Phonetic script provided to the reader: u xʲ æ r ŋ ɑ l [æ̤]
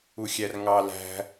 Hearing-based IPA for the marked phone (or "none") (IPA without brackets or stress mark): æ̤